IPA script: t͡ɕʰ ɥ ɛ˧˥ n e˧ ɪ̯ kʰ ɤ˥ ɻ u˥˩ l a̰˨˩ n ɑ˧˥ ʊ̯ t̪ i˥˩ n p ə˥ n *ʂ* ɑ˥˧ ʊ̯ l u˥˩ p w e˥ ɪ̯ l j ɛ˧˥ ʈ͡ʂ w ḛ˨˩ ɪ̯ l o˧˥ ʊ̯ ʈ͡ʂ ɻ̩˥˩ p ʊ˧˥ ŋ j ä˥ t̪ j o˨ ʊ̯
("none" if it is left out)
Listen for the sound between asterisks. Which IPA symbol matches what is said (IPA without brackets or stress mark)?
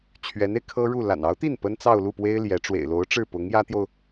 t͡s